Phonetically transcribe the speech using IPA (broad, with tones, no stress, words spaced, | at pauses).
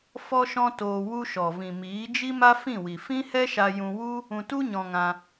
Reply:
fɔ˦ʃɔ̃˦toː˧ wu˧ʃɔ˨vĩ˨ miː˨˦d͡ʒi˦ma˦ fĩ˦˨wi˨ fĩ˦hɛ˦ʃa˧ jũ˧wu˦ | ũ˧tu˦ɲɔ̃˧ŋã˧